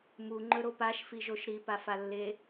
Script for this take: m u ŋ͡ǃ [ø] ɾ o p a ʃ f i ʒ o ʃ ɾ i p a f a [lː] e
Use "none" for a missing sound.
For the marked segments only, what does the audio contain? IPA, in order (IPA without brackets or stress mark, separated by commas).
ɵ, lː